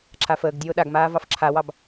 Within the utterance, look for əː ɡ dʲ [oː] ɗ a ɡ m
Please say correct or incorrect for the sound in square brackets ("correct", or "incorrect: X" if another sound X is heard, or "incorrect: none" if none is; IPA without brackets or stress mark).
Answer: correct